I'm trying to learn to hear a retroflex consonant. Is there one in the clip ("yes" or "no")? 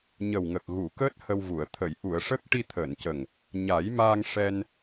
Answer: yes